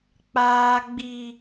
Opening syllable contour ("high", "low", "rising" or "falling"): high